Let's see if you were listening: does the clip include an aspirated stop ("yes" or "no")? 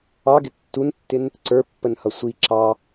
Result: no